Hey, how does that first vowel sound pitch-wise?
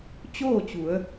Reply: falling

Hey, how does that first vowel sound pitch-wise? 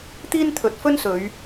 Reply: high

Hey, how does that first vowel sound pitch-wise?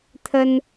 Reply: high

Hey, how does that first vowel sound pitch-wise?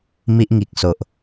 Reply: high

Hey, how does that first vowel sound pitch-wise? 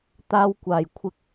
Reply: high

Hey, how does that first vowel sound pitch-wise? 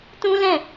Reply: high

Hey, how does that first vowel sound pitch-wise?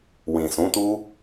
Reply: low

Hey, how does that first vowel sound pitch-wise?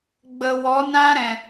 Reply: low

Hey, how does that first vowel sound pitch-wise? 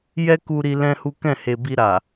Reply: high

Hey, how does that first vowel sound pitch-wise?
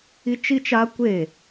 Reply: high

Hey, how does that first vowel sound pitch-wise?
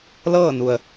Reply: falling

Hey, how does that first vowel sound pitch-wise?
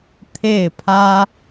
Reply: falling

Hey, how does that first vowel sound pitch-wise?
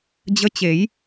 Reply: rising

